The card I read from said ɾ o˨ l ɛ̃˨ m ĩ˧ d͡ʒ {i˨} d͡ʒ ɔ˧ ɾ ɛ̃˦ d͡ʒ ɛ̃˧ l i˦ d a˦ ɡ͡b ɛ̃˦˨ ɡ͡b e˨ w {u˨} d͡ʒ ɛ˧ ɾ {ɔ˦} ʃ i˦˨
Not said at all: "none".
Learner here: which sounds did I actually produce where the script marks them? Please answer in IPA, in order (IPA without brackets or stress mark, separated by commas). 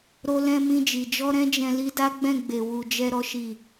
i˨, u˨, ɔ˦